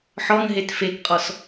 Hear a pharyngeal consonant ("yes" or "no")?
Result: yes